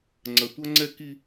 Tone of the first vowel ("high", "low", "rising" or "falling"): low